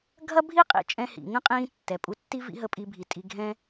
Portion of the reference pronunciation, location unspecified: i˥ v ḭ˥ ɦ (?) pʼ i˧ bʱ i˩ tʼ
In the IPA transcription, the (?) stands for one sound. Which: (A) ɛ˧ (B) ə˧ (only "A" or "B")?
B